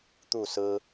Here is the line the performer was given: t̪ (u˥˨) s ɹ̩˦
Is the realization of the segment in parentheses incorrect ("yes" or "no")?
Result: no